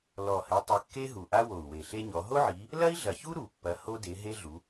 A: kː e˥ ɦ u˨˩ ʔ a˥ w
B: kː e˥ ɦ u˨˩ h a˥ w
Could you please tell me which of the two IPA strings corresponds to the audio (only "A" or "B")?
A